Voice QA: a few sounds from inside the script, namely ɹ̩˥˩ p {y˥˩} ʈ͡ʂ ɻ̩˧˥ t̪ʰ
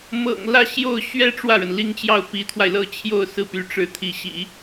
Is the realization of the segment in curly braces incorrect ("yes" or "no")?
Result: yes